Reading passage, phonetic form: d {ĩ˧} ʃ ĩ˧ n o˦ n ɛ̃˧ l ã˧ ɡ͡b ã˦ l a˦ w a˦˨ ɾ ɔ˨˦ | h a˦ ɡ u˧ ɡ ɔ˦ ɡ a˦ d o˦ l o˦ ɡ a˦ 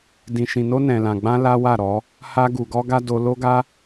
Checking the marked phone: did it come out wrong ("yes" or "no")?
no